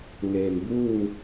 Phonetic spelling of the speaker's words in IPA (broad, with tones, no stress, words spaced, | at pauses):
ŋeː˩mbuː˥˨ŋ